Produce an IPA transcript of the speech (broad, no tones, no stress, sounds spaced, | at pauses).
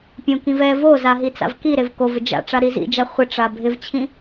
pʲ õ k ĩ v ɛ v o z a ɦ i t͡s a̰ v k i ɾ e v k o v ɪ d͡ʒ a̰ ʈ͡ʂ a ɾ i z ḭ d͡ʒ a χʷ ɪ ʈ͡ʂ a bʱ ɪ v t͡ɕʰ ĩ